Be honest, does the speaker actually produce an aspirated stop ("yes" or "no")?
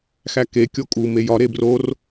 no